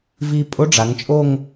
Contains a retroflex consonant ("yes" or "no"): yes